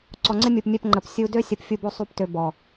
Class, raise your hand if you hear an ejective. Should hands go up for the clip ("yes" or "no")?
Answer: no